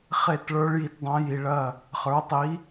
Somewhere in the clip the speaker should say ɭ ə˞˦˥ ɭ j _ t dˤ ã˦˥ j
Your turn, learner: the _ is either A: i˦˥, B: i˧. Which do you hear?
B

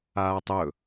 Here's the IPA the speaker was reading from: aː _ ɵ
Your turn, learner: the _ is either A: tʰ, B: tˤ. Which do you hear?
B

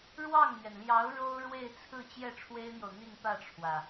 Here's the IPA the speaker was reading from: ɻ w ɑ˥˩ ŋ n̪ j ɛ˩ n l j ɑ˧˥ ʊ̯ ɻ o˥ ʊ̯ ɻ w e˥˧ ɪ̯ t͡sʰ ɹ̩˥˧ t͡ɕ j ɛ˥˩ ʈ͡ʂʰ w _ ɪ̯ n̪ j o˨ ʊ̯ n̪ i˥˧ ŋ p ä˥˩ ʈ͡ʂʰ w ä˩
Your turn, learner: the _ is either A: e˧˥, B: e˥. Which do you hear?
B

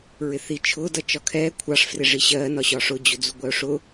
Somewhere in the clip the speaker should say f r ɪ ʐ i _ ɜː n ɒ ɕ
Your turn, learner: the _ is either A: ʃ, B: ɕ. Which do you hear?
B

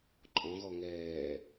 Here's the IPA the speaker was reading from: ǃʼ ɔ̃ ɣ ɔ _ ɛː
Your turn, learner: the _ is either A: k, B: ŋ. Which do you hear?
B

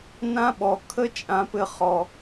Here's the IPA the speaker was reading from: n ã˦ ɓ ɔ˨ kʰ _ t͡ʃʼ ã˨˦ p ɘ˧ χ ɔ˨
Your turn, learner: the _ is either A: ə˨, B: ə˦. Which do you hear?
B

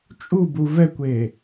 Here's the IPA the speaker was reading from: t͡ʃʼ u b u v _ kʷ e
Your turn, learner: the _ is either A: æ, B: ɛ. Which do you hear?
B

